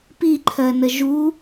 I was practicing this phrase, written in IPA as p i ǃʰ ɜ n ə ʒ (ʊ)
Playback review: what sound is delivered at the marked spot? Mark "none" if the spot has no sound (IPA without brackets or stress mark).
u